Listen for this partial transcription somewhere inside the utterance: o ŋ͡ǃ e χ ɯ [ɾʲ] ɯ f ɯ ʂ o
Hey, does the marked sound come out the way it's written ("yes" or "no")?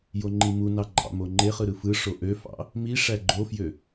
no